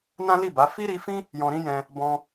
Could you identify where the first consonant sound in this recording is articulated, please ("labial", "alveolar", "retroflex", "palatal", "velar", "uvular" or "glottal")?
alveolar